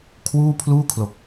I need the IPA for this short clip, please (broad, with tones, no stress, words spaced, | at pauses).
kʰwuː˥˩pʰluː˥˩kʰlo˨˩k̚